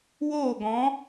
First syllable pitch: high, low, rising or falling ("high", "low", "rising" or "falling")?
falling